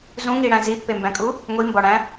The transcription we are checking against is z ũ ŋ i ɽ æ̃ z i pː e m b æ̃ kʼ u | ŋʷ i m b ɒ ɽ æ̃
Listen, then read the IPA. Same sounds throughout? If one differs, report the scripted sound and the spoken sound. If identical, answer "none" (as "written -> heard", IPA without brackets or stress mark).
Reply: none